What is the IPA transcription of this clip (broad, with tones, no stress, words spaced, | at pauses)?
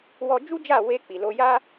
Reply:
wɔ˧d͡ʒu˦d͡ʒa˦˨ we˧ k͡pi˨lo˧ ja˦